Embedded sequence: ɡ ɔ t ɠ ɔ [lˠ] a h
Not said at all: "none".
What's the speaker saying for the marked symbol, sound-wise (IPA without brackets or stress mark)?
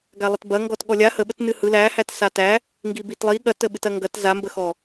lʲ